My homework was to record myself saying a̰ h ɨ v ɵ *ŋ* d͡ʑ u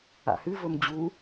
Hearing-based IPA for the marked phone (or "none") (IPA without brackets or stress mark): m